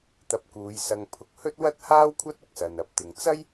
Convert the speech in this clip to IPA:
t̪ ɐ˧ p̚ k uː˨˧ j s ɐ˧ ŋ pʰ ʊ˧ k̚ h ɵ˥ t̚ w ɐ˥ t̚ h aː˥ w kʷʰ ɐ˥ t̚ ʊ˧ k̚ s ɐ˨ n ɐ˨ p̚ t̪ ɪ˨ ŋ t͡s ɐ˥ j

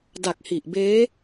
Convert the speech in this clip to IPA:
d a˨˩ k̚ h i˨˩ ʔ b eː˦˥

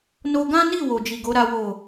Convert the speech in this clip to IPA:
n o˧ ɡ ã˦ n i˦˨ w o˨ d͡ʒ i˨ ɡ o˨˦ ɾ a˦ w o˦˨

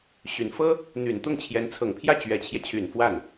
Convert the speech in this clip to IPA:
ɕ y˨˩ n f ɤ˥ | n̪ y˨˩ n t̪ ʊ˥˩ ŋ t͡ɕʰ j ɛ˧˥ n t͡sʰ ɤ˨˩ ŋ pʰ j ä˥˩ t͡ɕ ɥ ɛ˨˩ t͡ɕʰ j ɛ˦ t͡ɕʰ y˨˩ n f w a˥˩ n

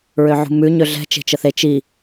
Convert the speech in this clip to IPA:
ɹ ø ʕ ṳ m ʉ ɲ ø ɮ ɛ̤ t͡ʃ e̤ t͡ʃ ə θ e t͡ʃ i

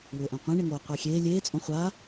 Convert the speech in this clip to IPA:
w ʏː ʔ ã qʷ ẽ ɳ ɪ ŋ oː qʷ e xʲ eː lʲ eː t͡sʼ õ χʷ a

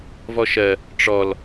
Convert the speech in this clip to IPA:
v ɔ ʃ ɜ | ʈ͡ʂ ɔ l

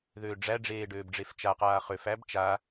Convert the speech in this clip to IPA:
ð øː ɖ͡ʐ æ ɖ͡ʐ eː ɖ øː b ɖ͡ʐ e f t͡ʃ a q aː χ ø f æ b t͡ʃ a

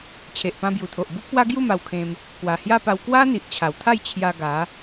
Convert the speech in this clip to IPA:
t͡ɕʰ e˨ ʔ p ã˧ b j u˨˩ t̪ʰ o˨ ʔ b u˦ k̚ p w a˦ ɡ j u˥˧ m a˧ w kʰ ẽ˧ m | k w a˨˩ h j a˥˧ p a˧ w k w a˦ n̪ i˨ ʔ t͡ɕʰ a˨˩ w t̪ʰ a˥˧ j t͡ɕʰ j a˧ ɡ a˨˦

